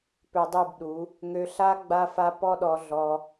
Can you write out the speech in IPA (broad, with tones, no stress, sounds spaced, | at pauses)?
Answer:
p ø˧ dˤ u˦˨ b ɗ u˨˦ | ŋ ø˧ ɬ a˦ ɡ͡b a˦ f a˦ p ɔ˦ ɗ ɔ˧ ɮ ɔ˧